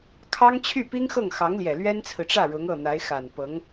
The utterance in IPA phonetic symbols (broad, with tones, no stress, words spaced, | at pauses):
kʰɑ˥ŋ t͡ɕʰy˥˩pi˥ŋxɤ˥˩ŋ xɑ˧˥ŋljɛ˨˩ lɥɛ˥nt͡sʰɹ̩˨ʈ͡ʂä˥˩ ɻʊ˧˥ŋ ɤ˥˩n̪a˧˥ɪ̯xa˨˩n pɤ˧˥ŋ